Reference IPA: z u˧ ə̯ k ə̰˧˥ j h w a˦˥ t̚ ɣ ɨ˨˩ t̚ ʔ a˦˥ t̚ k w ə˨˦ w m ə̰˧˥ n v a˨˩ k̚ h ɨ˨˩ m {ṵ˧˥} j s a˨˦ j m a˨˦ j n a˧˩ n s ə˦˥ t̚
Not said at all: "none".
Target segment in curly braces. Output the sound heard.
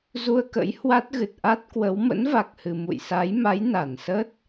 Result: ṵ˧˨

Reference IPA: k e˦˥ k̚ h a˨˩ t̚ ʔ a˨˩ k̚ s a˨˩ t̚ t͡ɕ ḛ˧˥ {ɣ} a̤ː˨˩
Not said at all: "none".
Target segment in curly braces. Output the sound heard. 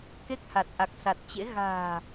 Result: ɣ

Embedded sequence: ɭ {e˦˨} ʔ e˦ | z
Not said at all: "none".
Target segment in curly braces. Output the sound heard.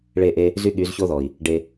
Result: e˦˨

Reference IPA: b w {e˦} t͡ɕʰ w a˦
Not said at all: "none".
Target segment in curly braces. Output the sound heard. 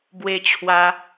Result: e˦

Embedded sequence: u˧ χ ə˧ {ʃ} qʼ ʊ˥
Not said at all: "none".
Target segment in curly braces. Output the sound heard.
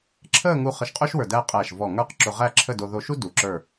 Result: ʃ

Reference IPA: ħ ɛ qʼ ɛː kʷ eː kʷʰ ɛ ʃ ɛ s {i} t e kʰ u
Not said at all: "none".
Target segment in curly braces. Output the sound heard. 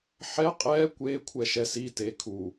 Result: i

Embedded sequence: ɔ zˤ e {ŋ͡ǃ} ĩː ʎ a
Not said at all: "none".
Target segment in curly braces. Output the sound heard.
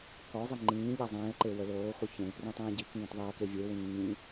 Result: ŋ͡ǃ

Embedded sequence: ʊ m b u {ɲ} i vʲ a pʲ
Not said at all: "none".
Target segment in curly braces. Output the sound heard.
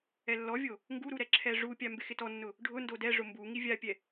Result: ŋ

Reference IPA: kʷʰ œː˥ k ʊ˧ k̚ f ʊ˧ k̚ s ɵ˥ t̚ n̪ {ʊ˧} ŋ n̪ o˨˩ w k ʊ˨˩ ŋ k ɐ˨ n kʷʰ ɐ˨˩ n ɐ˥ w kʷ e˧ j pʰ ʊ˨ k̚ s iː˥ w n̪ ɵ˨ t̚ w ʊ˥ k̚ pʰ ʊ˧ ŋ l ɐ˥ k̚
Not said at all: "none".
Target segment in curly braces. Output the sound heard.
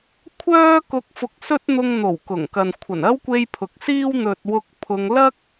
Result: ʊ˧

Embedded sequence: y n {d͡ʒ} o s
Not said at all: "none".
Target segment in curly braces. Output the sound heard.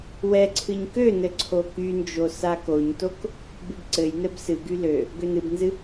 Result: d͡ʒ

